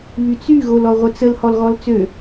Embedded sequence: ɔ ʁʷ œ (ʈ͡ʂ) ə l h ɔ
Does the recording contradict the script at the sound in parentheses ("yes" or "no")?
yes